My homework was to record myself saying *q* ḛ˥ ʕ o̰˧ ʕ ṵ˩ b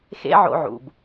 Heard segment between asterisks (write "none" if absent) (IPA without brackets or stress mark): x